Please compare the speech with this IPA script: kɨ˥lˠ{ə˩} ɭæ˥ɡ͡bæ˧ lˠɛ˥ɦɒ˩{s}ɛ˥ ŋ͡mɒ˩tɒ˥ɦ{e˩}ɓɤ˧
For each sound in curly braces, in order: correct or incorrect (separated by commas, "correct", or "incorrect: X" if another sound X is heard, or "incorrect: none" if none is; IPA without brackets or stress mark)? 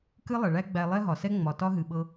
correct, correct, incorrect: ɨ˩